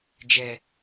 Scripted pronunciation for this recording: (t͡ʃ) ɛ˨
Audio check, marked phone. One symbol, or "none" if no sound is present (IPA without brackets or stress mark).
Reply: d͡ʒ